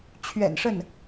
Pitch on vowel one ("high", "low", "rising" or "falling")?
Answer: low